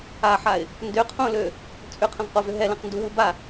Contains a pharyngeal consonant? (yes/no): yes